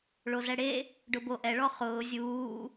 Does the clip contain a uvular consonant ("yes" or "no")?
yes